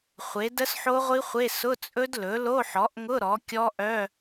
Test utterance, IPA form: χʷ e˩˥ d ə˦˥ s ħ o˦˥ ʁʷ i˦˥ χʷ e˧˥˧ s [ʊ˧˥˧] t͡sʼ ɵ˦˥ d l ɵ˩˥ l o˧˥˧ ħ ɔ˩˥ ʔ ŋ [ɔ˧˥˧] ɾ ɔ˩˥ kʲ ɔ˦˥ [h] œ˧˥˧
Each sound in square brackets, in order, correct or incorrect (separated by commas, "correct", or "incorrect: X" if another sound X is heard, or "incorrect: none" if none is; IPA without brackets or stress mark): correct, incorrect: ʊ˧˥˧, incorrect: ʔ